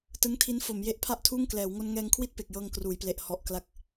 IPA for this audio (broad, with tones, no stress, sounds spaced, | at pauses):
t ɯ˦˥ ŋ tʰ i˦˥ n f o˩˦ m j e˦˥ ʔ pʰ a˥˩ ʔ tʰ uː˥˩ ŋ k l ɛː˩˦ w ŋ o˧ n ŋ ɛː˧ ŋ kʰ w i˥˩ t̚ p e˨˩ k̚ j ɤː˧ ŋ k r uː˩˦ j p l e˨˩ ʔ h ɔ˨˩ ʔ k l a˨˩ k̚